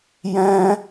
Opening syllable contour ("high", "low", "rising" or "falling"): high